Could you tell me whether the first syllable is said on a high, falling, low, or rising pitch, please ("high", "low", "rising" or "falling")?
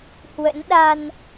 rising